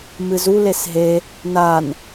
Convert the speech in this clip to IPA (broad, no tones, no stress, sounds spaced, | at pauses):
m ɨ z u l e s ɦ e | n a n